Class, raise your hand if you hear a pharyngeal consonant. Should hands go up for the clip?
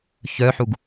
yes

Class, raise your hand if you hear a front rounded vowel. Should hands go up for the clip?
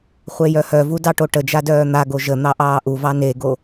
yes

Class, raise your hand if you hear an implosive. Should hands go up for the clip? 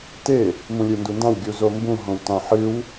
no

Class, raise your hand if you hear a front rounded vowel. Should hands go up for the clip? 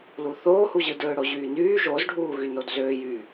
yes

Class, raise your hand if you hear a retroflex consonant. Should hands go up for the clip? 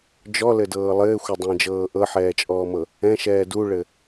yes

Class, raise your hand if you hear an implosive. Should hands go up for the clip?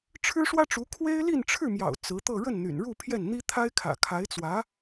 no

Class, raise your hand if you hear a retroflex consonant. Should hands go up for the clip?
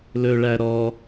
yes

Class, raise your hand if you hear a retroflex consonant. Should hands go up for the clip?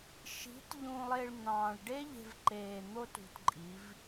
yes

